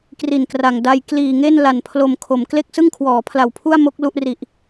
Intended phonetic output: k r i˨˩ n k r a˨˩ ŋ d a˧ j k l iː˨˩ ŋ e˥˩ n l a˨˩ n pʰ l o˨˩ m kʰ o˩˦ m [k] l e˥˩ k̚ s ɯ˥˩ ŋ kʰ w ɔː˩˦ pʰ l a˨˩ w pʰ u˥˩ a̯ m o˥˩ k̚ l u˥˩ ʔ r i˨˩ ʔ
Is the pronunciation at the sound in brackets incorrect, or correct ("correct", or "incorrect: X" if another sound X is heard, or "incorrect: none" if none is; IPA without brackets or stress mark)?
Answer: correct